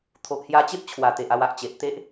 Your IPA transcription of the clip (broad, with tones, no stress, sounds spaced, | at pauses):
t̪ʰ o˨ ʔ h j a˧ t͡ɕ e˦ p̚ t͡ɕʰ w a˨˩ t̪ e˨ ʔ a˧ w a˨ ʔ t͡ɕ e˨ ʔ t̪ e˦ ʔ